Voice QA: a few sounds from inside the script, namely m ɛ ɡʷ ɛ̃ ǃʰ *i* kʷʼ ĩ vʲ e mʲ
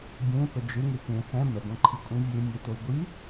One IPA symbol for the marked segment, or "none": i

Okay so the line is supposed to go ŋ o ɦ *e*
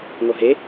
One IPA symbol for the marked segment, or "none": e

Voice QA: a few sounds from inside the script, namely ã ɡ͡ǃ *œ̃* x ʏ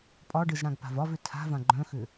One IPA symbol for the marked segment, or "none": œ̃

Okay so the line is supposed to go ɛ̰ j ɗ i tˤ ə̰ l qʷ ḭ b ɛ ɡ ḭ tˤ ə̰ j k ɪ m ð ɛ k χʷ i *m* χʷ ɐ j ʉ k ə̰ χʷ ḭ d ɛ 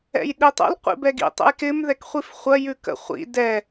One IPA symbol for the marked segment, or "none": f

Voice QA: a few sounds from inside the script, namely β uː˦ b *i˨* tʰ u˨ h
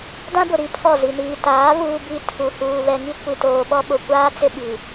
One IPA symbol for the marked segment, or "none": i˦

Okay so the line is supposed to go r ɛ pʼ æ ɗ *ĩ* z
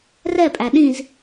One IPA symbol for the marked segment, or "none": ĩ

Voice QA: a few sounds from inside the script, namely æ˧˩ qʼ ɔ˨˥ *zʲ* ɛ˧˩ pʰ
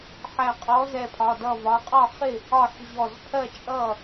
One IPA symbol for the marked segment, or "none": z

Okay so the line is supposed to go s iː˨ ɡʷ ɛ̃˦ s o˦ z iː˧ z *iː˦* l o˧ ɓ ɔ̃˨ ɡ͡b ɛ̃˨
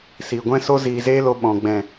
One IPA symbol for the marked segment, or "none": eː˦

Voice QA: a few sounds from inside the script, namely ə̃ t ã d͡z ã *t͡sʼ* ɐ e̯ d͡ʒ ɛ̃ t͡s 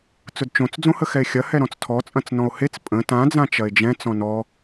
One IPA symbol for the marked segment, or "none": t͡ʃ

